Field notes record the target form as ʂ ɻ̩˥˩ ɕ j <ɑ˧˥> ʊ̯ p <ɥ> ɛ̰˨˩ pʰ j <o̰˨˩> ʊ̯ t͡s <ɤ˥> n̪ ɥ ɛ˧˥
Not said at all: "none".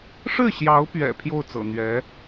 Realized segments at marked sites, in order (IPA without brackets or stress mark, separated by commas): ɑ˧˥, ɥ, o˥˩, ɤ̰˨˩